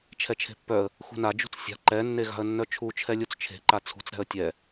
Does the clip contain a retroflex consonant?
no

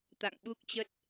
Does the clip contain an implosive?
yes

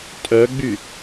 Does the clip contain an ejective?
yes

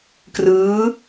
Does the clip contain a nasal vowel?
no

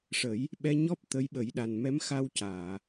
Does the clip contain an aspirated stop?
no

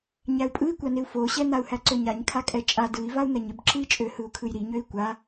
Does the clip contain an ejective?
yes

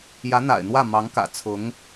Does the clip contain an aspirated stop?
yes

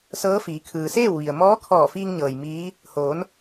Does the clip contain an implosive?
no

